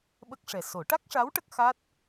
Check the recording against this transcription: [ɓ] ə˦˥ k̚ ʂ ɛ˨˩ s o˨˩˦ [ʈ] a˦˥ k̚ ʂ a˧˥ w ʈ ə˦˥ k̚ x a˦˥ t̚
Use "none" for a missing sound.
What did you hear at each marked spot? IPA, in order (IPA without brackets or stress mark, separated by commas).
ɓ, ʈ